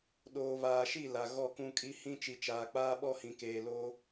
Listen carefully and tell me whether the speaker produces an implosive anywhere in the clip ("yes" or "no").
yes